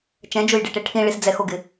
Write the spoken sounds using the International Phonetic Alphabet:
t͡ʃ ɛ̃ d͡ʒ ʊ j ɖ e ʈ e ʈʰ ĩ ɭ i s d͡z ɛ x o ɡ ɪ

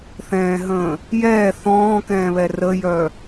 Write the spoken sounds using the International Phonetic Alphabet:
θ ɛ̃ː ɦ ə̃ː | j ɛː θ ɔ̃ː k ɛ̃ː β ɛ r ə j œ

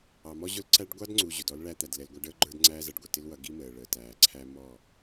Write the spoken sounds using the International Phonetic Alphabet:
ɑ˨ m ɔ˦ ʑ ʊ˦ l ǀ æ˦ ɖ ɡʷ ɑ˦ d ŋ͡ǀ u˨ ʑ ʊ˨ d ɔ˦ l ɭ æ˦ t̪ æ˨ d l ɛ˨ l ɡʷ ɑ˦ ɖ əː˦ ɡ͡ǃ ə˞˦ d ŋ͡ǀ æː˦ z ʌ˨ ɖ ɡʷ ɪ˨ t ɪ˦ l w ʌ˨˦ ɡ i˦ m əː˨ ɭ əː˨ t æː˨ ǀʰ æ˦ m ɔ˦˨

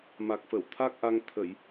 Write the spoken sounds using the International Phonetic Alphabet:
m a˨˩ k̚ f ə˧˩ w t̪ʰ a˦˥ k̚ ʔ a˧ ŋ t̪ʰ ə˧˩˨ j

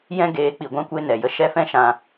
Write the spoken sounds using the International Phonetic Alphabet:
j ɛ̃˦ ɡ eː˨˦ k͡p i˨ ɡʷ ã˧ kʷ e˧ n ɛ˨ j ə˧ ʃ ɛ˦˨ f ɛ̃˦ ʃ ã˧

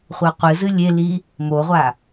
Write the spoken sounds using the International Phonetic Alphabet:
χʷ ɐ qʷ ɨ z ɨ lʲ e l i | m o ʁʷ a

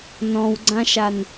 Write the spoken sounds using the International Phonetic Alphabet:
n ɔ̃ w ɡ͡ǀ ã ʃ a n

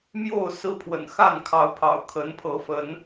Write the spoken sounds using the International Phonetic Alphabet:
m j o˥˨ ʊ̯ s ɹ̩˦ pʰ w ə̰˨˩ n x a˥˨ n kʰ ɑ˨˦ ʊ̯ pʰ ɑ̰˨˩ ʊ̯ kʰ ə˨˦ n pʰ ɤ˨˦ f ə˨˦ n

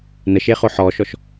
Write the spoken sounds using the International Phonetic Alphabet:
n ə ʃ e χ o ħ ɔ ʃ ɔ ʃ

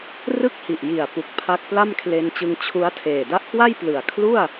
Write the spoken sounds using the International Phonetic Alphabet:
r ɯ˥˩ k̚ h i˨˩ ʔ j i˨˩ a̯ p u˨˩ k̚ pʰ a˦˥ k̚ p l a˥˩ m kʰ l e˧ n t͡ɕ ɯ˧ ŋ t͡ɕʰ u˦˥ a̯ tʰ eː˨˩ d a˦˥ ʔ k w a˥˩ j p l ɯ˨˩ a̯ kʰ l u˥˩ a̯

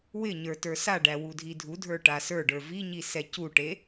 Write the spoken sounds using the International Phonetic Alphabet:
w ɪ ɲ ə˞ t ə˞ s a ɖ æ w u dʱ i dʱ u dʱ ə˞ ʈ a s ə˞ ɖ ə˞ v i ɲ i s ɛ c u ʈ e

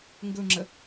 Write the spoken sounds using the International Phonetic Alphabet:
ŋ ɡ ɵ ŋ͡ǁ ə

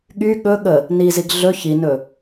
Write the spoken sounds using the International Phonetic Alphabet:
ɠ y ɠ ɵ ɠ ə | n i z i ɡ ɮ ɵ ç i n ɵ

